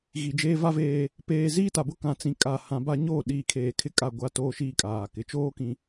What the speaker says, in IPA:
ɣi˨d͡ʒeː˦va˦veː˦ | peː˨ziː˦ta˨bʊ˦ kã˨t͡sĩ˨kʼa˨ hã˨ba˦ ɲoː˦˨ɗiː˨ kʰeː˨kʰɪ˦kʼa˦˨ ɡʷa˦toː˦ʃiː˦kʼaː˨ kɪ˨t͡ʃoː˦ kĩ˨

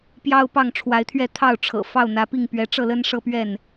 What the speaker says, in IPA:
pjɑ˦ʊ̯pɑ˥˨ŋʈ͡ʂʰwa˨˦ɪ̯t̪ʰɥɛ˥˨ t̪ʰɑ˥˨ʊ̯ʈ͡ʂʰɤ̰˨˩ fɑ˥˨ʊ̯n̪ä˨˦pi˥˨ŋ pɥɛ˨˦ʈ͡ʂɤ˥˨lə˦n ʂɤ˦pɥɛ˥˨n

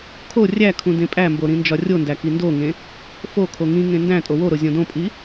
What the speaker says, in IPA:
kʰo rʲækʰũ dẽpʼæmbo ɾĩnd͡ʒɒrʲondæ kindoŋẽ | fokʰo ŋĩŋẽ ndæ̃tʼo woɾo zʲõdõpʼi

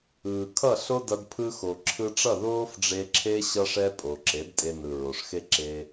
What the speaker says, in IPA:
ɯː˨kʰʌ˦˨ɬo˦dʌ˧d pʰɯ˧xo˨ ǁʰɯ˧ʈ͡ʂʌ˦˨ ðoː˦fɖ͡ʐe˧ǁʰe˦ ɕʌ˦ʂɛ˦ pʼo˨ǁe˨˦d tʼe˧nɯ˨ɹo˨ʂxe˦ ǁe˧

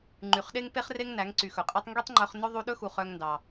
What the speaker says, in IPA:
ŋ͡ǃy˨χɗe˦ŋpe˦χre˦ŋ næ˨˦ŋǀy˨xɵ˨qʼe˦tˤ ŋɡi˦tˤŋ͡ǃœ˧χ nɵ˦ ðˤu˧ɗɵ˦xu˨ χœ˧ŋndɑ˨

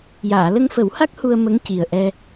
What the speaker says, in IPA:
jaː˨˩˨lə˧ŋfə˨˩˦wha˦˥k̚ hu˧ə̯mə˧˥ŋ ci˨˩ə̯ʔɛ˧

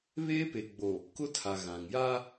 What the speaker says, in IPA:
βeː˦pe˨ɡ͡bo˨ | kʊ˦tʰa˨ ɣã˨ŋja˦

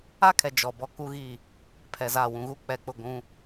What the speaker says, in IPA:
a˦kʰɛ˨ d͡ʒɔ˨bɔ˦ ku˦ɣi˦˨ | pʰɛ˨za˦˨ wũ˨ɣuː˦k͡pɛ˨k͡pʊ˦˨ ɡʷũ˦

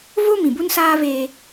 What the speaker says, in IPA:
vo˦ mĩ˨bu˦nsaː˦veː˦

